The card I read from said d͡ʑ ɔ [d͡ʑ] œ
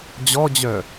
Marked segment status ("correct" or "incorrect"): correct